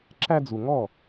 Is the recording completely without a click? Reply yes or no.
no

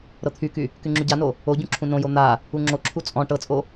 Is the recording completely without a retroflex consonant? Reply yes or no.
no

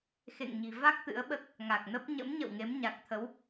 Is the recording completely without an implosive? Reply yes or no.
no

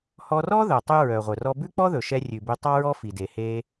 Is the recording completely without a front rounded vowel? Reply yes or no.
no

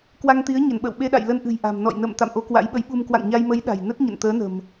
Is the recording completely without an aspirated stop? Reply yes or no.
yes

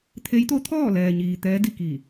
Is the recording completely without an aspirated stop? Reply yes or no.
no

